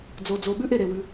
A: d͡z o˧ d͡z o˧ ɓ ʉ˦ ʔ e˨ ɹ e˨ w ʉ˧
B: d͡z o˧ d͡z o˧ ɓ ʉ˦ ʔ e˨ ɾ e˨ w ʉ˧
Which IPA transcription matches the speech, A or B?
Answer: B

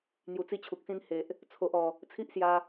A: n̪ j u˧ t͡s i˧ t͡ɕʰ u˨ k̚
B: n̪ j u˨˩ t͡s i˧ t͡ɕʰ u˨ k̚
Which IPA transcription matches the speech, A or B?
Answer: B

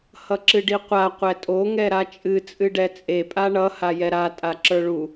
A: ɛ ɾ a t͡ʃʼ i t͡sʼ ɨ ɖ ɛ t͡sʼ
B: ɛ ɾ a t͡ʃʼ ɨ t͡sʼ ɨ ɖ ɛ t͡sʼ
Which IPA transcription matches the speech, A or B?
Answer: B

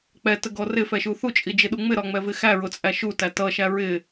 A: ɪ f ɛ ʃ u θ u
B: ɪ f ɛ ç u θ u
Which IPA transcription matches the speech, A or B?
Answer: A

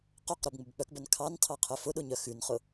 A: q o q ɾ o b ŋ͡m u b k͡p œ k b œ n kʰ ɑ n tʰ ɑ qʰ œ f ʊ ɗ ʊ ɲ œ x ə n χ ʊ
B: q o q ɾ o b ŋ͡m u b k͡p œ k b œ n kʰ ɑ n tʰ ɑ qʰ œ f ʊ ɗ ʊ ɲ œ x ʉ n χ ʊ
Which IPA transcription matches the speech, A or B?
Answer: B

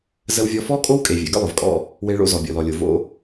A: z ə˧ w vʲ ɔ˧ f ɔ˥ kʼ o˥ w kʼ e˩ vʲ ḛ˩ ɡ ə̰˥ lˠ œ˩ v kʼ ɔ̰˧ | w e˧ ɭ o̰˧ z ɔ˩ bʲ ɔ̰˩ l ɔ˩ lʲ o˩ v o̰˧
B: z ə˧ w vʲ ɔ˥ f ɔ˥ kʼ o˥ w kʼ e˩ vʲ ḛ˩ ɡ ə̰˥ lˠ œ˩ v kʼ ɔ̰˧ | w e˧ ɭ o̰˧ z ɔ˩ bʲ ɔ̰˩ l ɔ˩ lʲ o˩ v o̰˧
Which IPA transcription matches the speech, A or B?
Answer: A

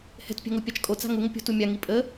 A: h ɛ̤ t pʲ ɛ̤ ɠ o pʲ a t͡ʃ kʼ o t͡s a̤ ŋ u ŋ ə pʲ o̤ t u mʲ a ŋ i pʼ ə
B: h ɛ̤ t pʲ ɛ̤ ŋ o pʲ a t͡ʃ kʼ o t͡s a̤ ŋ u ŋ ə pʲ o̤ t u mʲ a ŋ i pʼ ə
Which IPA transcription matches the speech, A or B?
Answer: B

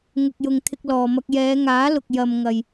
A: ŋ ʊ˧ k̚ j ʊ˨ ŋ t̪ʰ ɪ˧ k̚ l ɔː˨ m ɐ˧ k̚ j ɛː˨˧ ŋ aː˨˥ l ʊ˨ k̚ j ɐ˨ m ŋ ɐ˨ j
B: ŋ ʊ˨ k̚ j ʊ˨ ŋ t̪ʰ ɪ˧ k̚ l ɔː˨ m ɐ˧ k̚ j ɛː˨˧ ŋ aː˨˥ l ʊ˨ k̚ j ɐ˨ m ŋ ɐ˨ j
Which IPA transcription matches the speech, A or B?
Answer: B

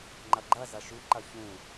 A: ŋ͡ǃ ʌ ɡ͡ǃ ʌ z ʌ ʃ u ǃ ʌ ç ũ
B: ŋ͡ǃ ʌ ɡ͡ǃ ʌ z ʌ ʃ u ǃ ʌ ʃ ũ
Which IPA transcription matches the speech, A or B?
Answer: A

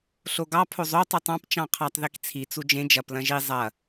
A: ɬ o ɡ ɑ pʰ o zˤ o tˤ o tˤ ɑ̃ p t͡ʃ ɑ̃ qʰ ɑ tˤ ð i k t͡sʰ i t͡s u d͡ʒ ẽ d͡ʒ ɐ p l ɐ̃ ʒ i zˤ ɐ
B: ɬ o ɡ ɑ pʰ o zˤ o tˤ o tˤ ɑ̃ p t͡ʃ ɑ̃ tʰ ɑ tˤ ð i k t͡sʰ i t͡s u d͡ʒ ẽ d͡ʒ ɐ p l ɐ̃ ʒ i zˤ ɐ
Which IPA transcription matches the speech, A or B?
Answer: A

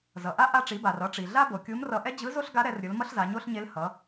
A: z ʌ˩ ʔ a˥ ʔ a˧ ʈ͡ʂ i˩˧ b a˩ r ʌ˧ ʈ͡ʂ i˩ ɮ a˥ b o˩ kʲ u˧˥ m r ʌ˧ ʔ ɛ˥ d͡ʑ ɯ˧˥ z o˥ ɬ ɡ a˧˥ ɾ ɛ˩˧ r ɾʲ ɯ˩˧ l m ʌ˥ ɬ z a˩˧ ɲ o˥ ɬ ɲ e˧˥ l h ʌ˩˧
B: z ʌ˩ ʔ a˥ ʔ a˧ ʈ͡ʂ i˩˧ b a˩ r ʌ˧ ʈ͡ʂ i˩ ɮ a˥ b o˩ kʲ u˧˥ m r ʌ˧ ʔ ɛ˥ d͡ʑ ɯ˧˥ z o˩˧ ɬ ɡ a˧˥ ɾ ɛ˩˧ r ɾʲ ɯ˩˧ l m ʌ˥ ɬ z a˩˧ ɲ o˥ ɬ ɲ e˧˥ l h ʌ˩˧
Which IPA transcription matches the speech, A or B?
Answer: A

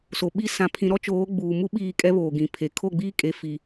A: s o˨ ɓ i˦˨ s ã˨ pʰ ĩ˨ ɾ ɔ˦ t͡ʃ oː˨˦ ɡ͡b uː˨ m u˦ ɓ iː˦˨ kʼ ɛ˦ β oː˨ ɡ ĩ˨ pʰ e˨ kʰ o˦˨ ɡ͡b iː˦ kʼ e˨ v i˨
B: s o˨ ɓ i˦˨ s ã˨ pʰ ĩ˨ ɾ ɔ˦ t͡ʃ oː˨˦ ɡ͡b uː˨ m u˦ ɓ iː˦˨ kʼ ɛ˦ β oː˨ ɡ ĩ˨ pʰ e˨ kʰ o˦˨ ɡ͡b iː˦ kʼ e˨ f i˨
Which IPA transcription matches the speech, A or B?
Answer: B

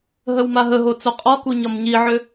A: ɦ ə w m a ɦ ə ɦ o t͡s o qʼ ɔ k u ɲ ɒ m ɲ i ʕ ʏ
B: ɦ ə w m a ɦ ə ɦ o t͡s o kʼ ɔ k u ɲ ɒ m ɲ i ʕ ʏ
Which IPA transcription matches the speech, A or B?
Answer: A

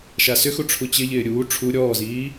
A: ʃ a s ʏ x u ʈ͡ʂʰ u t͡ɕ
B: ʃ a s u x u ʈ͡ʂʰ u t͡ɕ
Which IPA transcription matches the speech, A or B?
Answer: A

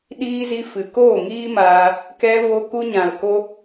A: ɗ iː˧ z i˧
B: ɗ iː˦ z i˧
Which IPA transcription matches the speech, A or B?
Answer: A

